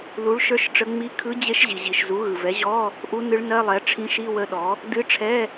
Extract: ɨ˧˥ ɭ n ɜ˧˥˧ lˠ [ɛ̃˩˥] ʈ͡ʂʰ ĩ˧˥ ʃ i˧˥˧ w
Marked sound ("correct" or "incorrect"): incorrect